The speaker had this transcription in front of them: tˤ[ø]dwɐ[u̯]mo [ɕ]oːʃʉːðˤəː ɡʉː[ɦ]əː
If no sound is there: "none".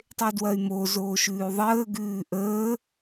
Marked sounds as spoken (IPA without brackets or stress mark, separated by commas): e, y̯, z, ʔ